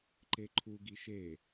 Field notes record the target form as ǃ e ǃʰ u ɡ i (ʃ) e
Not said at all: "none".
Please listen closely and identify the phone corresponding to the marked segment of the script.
ʃ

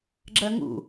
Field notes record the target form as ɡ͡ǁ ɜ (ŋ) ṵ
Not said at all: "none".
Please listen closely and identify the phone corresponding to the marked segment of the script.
ŋ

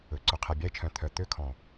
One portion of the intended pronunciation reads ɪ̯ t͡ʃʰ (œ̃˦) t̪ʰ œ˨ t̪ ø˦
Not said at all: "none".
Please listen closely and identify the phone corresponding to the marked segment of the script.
œ̃˨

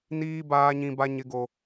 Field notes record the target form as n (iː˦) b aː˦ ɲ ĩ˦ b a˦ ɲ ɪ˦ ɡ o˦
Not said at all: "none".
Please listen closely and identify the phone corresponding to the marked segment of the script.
iː˦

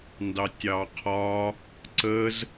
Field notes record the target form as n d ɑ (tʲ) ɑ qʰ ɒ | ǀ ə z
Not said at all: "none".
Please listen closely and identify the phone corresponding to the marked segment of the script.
tʲ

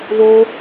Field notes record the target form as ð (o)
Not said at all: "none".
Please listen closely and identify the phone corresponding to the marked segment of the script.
o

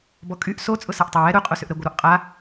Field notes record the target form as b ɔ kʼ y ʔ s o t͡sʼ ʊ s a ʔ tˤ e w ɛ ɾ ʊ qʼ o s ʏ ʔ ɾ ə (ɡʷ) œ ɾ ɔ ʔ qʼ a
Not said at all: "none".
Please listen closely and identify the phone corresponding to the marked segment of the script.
ɡʷ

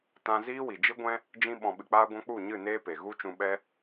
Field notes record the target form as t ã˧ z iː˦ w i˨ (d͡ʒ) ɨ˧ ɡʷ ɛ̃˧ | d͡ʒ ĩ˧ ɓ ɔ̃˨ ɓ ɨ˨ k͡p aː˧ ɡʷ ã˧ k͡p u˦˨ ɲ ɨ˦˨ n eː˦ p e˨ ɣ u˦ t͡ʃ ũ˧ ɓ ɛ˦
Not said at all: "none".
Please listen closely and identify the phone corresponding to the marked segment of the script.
d͡ʒ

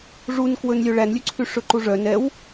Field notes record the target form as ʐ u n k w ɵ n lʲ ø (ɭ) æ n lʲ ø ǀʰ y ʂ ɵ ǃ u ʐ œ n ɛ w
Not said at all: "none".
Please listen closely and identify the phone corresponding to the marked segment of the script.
ɭ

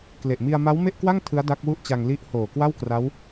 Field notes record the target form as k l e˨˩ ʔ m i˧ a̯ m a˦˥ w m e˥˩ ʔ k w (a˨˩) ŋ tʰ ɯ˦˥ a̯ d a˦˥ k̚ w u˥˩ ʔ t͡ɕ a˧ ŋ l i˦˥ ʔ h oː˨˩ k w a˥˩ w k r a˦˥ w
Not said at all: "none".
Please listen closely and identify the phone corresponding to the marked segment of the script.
a˥˩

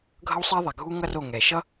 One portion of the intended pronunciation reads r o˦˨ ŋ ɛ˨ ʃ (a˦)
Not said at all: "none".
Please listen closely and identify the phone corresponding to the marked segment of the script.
ʌ˦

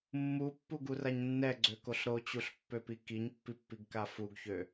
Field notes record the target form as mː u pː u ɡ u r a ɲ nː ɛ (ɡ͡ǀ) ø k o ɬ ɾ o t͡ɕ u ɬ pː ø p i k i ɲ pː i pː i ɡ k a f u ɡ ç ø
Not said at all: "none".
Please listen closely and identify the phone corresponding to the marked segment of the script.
ɡ͡ǀ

